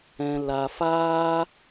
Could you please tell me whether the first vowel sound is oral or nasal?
nasal